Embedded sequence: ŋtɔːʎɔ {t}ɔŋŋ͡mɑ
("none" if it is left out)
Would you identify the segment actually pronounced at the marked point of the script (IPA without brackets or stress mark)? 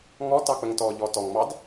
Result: t